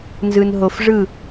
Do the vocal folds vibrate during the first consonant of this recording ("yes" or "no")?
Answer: yes